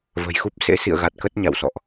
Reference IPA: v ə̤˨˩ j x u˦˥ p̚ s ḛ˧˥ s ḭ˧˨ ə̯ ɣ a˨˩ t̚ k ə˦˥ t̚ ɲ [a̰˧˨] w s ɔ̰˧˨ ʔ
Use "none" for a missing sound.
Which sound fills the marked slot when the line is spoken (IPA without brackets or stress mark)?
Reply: a̰˧˨